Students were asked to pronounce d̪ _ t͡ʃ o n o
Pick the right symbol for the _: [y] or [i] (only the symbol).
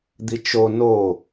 i